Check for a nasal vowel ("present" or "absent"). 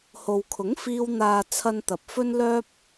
absent